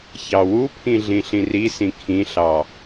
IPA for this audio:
ç ɑ w u pʰ ĩ ɮ ĩ ɬ ĩ r i s ĩ kʰ ĩ ɬ ɑ

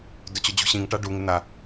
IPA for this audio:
d ʊ t͡ɕ ʊ d͡ʑ ṳ ɕ ĩ ŋ ʈ a ɖ u ŋ ɪ n̪ a

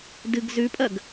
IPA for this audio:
d ɨ ɡ z ʉ pʼ ɐ ɡ

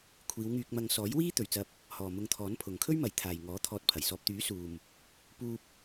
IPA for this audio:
kʷʰ iː˨˧ w ŋ yː˧ k̚ m ɐ˧ ŋ s ɔː˨˥ j w iː˥ t̪ ɵ˨ ɥ t͡s ɐ˧ p̚ | h ɔː˨ m ʊ˧ ŋ t̪ʰ ɔː˨˥ n pʰ ʊ˨ ŋ kʰ ɵ˥ ɥ m ɐ˨ j t̪ʰ aː˨ j ŋ ɔː˨˥ t̪ʰ ɔː˧ t̚ pʰ ɐ˨˩ j s ɔː˨ p̚ t̪ yː˨˥ s uː˨ m | p uː˧ p̚

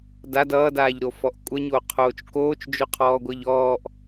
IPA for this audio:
d a d ʌː d aː ʎ ɾ o f ɔ ʔ kʷʼ ʌ ɲ o qʰ oː t͡ʃ k oː t͡ʃ d͡ʒ o qʰ ɔː ɡʷ ʌ ʎ ɔː ʔ

